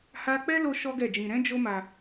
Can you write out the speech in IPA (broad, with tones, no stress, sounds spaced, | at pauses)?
h a˦ k͡p ɛ˦ l o˧ ʃ ɔ˦ ɡ ɛ˦˨ d͡ʒ ĩ˧ ɾ ɛ̃˦ d͡ʒ o˦ m a˧